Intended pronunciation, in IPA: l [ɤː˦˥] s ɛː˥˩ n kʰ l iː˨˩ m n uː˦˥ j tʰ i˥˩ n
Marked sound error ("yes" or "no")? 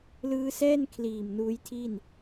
yes